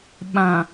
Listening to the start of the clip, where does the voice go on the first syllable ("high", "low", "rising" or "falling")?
low